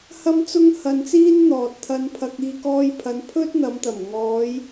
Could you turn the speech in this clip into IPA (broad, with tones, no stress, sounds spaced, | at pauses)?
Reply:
h ɐ˥ m t͡s ʊ˥ ŋ h ɐ˧ n t͡s iː˥ n n̪ ɔː˨ t̚ t̪ʰ ɐ˧ n pʰ ɐ˧ k̚ iː˧ k ɔː˧ j pʰ ɐ˨˧ n pʰ ɵ˥ t̚ n̪ ɐ˨˧ m t̪ ɐ˨˩ m ŋ ɔː˨˧ j